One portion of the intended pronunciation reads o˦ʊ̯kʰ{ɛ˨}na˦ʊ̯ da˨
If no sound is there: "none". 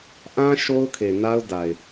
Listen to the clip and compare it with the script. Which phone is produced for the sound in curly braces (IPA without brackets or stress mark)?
e˨